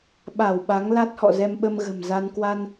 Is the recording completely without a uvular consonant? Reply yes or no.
yes